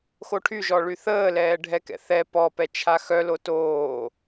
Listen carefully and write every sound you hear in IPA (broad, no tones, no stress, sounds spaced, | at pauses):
x o ʈʰ y ʒ ɔ ɭ y θ əː l ɛː ɖʱ ɛ k ɛ̰ θ ɛ p ɔ p ɛ t͡ʃʰ a x œ l o t oː